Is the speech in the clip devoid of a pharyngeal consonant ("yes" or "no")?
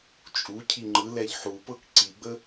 no